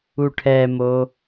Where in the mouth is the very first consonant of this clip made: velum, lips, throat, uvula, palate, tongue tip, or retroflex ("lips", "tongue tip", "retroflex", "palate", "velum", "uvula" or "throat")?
retroflex